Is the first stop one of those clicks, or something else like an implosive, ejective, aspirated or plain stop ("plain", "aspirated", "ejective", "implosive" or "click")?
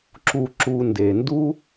click